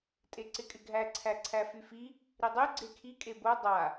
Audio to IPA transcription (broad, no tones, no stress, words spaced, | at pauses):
tʼeǀɪkʼɪɡʱæ ǀʰæǀʰæfyfi | ɾidˤy ɡ͡ǀekʰi kʼebo dˤa